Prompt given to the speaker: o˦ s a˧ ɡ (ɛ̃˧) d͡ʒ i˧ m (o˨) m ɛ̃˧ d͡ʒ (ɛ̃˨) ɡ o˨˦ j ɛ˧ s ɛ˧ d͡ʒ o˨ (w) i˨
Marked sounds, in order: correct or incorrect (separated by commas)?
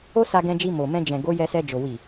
correct, correct, correct, correct